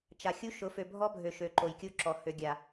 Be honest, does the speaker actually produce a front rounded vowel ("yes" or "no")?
yes